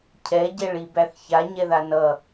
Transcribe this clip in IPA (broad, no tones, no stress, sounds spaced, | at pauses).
cʰ ɛ ɟ ɛ ɭ i b æ θ ç a ɲ ɛ ð a n ʌ